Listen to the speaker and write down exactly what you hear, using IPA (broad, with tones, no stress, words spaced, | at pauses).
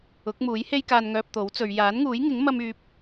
ʊ˨˥k̚muː˨˥jhe˥jkaː˧n ŋœː˧p̚t̪o˨˥wt͡sɵ˨˧ɥ jaː˨˥nŋuː˨˥jŋɪ˨˥ŋ mɐ˥myː˧p̚